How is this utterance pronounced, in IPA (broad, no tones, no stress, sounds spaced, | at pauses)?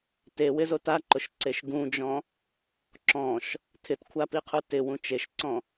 t e w ɪ z o t a ǃ ʊ ʃ ǀ e ʃ ɡ ũ d͡ʒ ɔ̃ | ǁ ɔ̃ ʃ | tʰ ɪ t kʷʰ a p i qʰ u t ɪ w ũ t͡ʃ e ʃ ǀ ɔ̃